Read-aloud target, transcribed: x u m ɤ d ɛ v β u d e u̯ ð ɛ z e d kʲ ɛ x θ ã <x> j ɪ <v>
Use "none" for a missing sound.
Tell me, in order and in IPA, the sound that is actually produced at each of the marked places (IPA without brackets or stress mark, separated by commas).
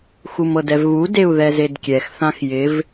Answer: x, v